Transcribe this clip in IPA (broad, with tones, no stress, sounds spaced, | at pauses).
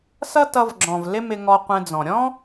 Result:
s ʌ˦ t ʌ˧ v ɡ͡ǁ ɔ̃˨ v l ɪ˦ m ɪ˧ ŋ ɔ˧ qʷ ɛ̃˧ d͡z ɔ̃˨ ɾʲ ɔ̃˦